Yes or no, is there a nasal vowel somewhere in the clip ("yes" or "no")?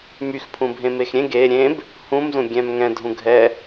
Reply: yes